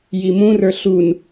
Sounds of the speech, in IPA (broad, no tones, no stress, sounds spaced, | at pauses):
j i m ũ r ə˞ ɬ u n